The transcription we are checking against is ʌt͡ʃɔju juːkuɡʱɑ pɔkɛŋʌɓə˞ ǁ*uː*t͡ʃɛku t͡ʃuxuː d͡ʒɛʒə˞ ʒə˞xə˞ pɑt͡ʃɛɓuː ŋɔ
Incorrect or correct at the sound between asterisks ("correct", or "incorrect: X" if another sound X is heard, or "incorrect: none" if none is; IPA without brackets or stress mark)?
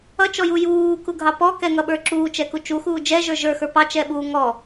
correct